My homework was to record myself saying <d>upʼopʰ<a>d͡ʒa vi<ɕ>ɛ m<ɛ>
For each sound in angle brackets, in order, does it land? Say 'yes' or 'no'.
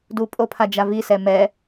yes, yes, no, yes

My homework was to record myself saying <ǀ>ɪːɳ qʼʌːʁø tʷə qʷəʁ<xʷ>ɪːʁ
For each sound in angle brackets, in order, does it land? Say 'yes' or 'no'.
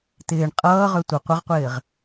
no, no

